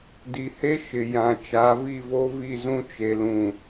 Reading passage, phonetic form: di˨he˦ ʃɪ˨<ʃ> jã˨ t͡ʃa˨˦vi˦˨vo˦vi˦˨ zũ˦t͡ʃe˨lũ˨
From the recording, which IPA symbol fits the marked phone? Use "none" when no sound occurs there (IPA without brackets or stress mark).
none